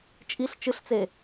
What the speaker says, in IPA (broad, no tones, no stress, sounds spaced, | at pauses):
t͡ʃʼ i ɬ t͡ʃ ɨ ɬ t͡s e